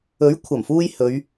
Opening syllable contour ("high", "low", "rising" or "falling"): rising